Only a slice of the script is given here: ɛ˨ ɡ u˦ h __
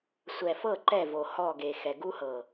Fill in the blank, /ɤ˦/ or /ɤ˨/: ɤ˨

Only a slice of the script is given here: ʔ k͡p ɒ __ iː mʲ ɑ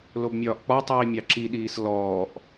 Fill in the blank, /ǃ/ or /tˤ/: tˤ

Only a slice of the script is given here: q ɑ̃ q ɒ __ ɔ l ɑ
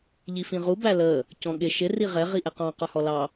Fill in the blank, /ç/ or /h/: h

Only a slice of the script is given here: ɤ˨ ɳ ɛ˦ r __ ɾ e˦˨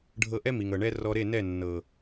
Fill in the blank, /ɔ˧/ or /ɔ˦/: ɔ˧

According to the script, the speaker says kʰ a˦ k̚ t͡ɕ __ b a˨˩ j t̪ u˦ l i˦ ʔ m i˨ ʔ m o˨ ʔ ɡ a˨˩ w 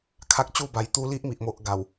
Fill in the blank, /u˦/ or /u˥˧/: u˥˧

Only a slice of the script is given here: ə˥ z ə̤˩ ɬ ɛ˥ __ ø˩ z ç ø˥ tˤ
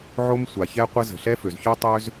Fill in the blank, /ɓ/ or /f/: f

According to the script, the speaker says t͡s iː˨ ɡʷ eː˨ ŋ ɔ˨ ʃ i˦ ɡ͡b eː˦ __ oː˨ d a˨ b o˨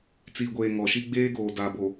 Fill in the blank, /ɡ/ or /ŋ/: ɡ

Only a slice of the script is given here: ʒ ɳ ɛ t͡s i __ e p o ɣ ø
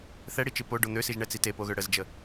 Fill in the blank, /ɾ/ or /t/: t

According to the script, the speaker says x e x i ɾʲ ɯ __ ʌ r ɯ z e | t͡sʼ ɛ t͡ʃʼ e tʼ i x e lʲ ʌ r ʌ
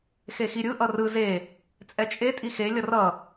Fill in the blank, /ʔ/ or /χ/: ʔ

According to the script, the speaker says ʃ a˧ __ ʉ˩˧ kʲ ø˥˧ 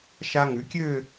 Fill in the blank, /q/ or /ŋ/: ŋ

